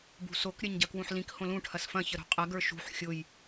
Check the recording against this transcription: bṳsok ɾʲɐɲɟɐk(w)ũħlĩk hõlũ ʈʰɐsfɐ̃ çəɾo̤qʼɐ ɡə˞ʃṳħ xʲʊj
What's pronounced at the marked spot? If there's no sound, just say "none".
w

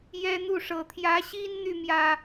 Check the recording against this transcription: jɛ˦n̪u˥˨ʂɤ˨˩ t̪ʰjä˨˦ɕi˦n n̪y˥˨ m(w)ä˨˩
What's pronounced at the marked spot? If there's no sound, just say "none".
j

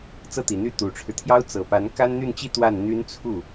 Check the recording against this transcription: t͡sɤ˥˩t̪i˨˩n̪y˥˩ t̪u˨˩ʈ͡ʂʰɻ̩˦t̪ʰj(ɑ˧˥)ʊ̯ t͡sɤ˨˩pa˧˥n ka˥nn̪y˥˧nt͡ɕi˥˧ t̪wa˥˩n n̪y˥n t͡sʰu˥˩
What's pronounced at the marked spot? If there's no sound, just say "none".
ɑ˥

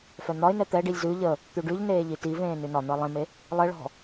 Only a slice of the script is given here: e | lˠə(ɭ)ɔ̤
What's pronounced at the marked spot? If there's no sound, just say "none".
ɭ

